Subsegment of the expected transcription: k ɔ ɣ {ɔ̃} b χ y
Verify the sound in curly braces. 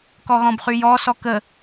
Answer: correct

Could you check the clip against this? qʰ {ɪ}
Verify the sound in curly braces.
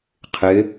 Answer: correct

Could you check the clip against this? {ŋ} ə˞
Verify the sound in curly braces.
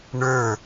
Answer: incorrect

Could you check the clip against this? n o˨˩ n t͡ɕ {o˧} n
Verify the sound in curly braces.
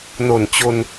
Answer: correct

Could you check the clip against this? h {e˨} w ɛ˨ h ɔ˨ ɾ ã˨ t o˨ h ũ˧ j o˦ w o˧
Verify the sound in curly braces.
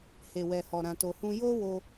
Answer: correct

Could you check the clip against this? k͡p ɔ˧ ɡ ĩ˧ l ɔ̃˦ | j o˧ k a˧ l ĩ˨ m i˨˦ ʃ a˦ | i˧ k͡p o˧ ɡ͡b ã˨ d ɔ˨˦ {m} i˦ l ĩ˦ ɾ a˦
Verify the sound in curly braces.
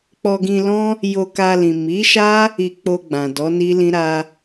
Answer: incorrect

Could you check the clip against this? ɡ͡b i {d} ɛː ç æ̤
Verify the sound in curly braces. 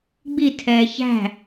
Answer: incorrect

